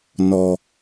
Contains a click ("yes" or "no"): no